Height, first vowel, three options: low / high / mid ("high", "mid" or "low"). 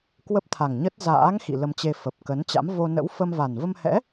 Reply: mid